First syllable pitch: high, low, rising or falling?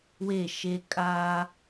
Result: falling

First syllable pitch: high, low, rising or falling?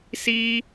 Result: high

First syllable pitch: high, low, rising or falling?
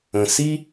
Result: low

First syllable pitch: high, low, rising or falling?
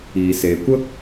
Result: low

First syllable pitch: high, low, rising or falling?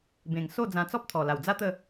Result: low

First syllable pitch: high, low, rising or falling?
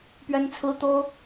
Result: high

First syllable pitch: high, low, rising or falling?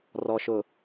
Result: low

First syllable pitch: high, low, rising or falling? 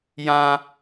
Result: high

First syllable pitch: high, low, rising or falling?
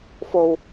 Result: low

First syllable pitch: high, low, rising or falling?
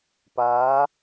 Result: rising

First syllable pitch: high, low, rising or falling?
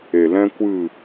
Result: low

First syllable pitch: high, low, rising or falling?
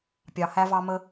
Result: low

